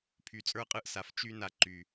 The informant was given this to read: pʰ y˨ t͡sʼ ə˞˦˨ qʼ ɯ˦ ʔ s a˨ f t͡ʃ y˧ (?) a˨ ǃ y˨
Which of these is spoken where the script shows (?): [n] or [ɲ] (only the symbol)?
n